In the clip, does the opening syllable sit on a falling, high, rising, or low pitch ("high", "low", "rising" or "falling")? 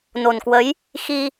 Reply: low